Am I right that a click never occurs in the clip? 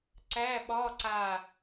no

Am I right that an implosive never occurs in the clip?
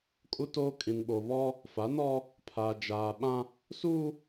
no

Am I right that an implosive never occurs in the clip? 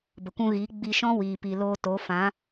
yes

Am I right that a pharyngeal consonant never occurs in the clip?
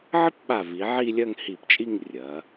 no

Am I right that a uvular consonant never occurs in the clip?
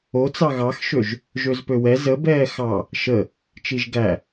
yes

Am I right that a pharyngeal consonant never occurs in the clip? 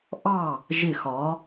yes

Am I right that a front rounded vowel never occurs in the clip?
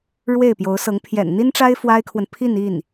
yes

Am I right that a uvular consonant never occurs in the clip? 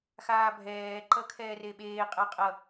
no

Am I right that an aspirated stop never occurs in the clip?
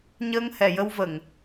yes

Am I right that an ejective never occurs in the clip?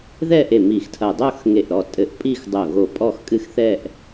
no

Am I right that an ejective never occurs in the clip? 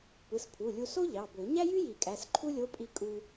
no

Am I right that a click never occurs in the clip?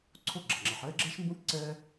no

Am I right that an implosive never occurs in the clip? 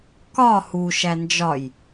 yes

